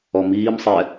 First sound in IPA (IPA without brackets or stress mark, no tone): ɔ